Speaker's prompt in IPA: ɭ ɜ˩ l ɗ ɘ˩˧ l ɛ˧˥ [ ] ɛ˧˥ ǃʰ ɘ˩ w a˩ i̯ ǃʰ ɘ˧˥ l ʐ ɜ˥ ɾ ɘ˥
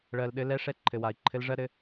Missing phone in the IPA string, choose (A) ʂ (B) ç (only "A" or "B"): A